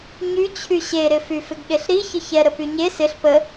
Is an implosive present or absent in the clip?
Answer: present